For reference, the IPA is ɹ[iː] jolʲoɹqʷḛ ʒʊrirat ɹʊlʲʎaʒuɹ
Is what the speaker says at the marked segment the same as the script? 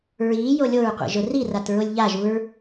yes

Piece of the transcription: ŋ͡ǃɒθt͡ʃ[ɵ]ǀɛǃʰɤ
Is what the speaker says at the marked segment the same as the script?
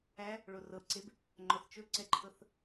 yes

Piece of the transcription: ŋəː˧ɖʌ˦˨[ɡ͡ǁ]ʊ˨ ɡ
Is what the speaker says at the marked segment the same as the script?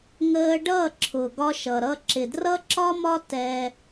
no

